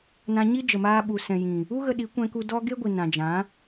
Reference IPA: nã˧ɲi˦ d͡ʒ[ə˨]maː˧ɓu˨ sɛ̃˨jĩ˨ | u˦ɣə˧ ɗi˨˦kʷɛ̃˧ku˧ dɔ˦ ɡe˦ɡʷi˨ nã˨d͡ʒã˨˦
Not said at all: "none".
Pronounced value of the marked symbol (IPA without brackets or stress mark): ə˨